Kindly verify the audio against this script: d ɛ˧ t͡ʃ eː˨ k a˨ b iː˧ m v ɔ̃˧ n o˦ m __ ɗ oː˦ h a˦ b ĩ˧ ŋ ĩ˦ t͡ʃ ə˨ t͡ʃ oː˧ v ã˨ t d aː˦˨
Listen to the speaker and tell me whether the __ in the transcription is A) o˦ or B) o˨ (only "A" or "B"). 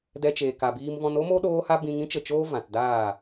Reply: A